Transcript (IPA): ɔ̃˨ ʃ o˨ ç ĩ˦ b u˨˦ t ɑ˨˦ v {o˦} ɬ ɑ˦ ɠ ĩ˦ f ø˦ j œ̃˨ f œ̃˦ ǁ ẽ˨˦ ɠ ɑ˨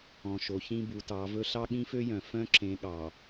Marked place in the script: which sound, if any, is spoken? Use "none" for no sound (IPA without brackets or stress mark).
ɵ˦